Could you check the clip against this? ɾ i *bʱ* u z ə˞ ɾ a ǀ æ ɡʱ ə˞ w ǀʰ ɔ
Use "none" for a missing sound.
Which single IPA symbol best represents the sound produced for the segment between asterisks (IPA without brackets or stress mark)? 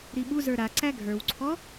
ɓ